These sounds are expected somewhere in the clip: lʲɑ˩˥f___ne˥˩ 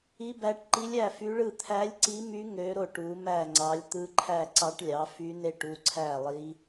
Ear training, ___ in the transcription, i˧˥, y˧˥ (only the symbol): y˧˥